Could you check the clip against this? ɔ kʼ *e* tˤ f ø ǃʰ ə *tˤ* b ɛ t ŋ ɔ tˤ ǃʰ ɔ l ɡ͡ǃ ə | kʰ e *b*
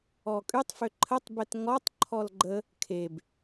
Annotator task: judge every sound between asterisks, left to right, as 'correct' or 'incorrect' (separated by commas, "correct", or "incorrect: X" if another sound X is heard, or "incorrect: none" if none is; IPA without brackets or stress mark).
incorrect: y, correct, correct